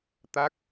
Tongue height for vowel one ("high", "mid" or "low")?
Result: low